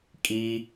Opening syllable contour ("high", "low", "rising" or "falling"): high